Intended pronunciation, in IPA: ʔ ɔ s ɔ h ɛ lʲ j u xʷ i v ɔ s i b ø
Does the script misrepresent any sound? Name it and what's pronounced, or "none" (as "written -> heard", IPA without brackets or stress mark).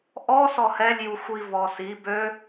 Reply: none